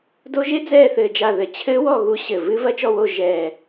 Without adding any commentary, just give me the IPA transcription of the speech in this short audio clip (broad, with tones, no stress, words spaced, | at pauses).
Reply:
do˦˥ʒe˦˥d͡zɛː˦˨ θɘː˦˨d͡ʒa˦˨ðɘ˨˩ t͡ɕʰɘː˦˥wɔ˦˨ ɣu˦˥ɕɘ˨˩ vɨ˦˥vɐ˦˥ t͡ʃɔ˦˨wo˦˨ ʒɛ˨˩